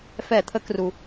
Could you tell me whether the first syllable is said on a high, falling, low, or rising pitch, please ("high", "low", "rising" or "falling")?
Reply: falling